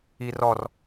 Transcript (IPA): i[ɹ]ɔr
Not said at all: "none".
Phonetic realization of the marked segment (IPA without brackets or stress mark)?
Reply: r